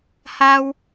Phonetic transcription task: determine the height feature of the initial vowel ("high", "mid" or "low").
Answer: low